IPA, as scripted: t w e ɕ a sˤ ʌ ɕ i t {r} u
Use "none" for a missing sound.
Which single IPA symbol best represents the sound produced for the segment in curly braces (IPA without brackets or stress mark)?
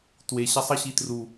r